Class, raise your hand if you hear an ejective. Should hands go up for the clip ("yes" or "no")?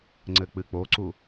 no